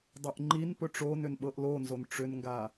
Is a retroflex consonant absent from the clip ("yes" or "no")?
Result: no